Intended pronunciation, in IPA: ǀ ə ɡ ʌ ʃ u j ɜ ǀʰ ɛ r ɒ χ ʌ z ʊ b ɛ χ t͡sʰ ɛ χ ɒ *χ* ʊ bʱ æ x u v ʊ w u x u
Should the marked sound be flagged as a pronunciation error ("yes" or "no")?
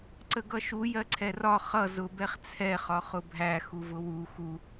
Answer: no